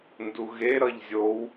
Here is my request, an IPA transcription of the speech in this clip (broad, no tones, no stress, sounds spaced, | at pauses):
n d u ɣ e ɾ ʌ ʎ zʲ o w